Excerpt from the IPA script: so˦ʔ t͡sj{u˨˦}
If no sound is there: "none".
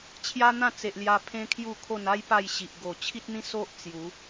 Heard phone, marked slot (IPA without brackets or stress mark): u˨˦